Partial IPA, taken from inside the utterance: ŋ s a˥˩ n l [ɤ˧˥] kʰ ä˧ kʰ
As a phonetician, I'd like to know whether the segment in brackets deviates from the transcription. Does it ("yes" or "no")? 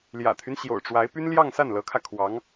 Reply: no